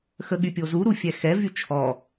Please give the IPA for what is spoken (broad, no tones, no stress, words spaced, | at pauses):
xəɠypʲozu ɾufʲɛxɛ vyt͡ʃʰɔ